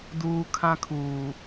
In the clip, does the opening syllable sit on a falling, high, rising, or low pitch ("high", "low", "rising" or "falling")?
high